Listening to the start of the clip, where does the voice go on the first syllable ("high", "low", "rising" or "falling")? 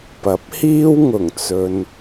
rising